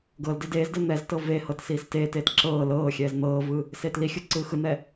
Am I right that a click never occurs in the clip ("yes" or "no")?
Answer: no